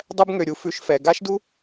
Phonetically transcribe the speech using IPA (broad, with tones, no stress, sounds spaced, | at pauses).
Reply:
dˤ ɛ˦ b ŋ ø˩ ɾʲ u˨ f ʉ˨ ʃ f ɛ˩ ɡ a˥ ʃ d u˥